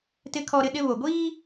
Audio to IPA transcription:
tɪ˦kʰɔ˦ɾɪ˦ɗɪ˦ βo˨ɡʷiː˦

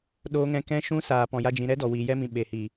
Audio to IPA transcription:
ɗoː˦ŋɛ̃˦ kɛ̃˦ʃũ˦ saː˧pɔ̃˧ja˦d͡ʒĩ˧ ɾɛ˦dɔ˨ wiː˨jɛ˧mĩ˨ ɓe˨hiː˨

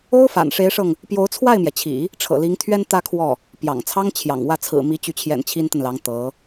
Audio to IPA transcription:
o˥ʊ̯fa̰˨˩nʂe˧˥ɪ̯ʂɤ˧ŋ | pjo˧˥ʊ̯t͡sʰwa˥˩ɪ̯mjɛ˩t͡ɕʰḭ˨˩˦ | ʈ͡ʂʰɤ̰˨˩li˧˥ŋt̪ʰɥɛ˥n t̪ä˥kʰwɔ˥˩ | pjɑ̰˨˩ŋ t͡sʰɑ˥ŋ t͡ɕʰjɑ̰˨˩ŋwä˥˩ t͡sʰɹ̩˨˩mi˧˥t͡ɕy˧˥t͡ɕʰjɛ̰˨˩n t͡ɕʰi˥nt̪ə˨nlɑ˧˥ŋ t̪ɤ˧˥

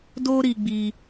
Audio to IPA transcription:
do˦ɾi˧ɡ͡bi˧

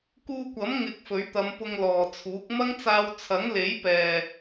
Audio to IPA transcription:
kuː˧kʷɐ˨˥m ŋɪ˧k̚fɵ˨˥ɥt̪ɐ˨˧m pʊ˧ŋlɔː˨t͡sʰuː˨˥k̚ mɐ˥ŋt͡saː˧w t͡sʰɐ˨˥ŋle˨˥j pɛː˨

